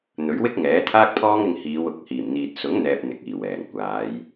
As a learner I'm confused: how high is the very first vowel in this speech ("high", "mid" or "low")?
mid